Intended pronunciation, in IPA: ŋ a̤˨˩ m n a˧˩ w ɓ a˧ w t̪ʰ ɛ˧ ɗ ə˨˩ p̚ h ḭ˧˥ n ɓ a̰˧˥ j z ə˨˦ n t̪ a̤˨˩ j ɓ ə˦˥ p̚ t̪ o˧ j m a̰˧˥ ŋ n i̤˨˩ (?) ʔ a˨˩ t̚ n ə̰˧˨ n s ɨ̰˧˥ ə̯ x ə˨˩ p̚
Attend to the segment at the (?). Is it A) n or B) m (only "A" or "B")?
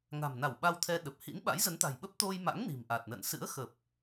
B